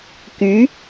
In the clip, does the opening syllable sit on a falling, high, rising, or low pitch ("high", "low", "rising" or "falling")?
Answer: rising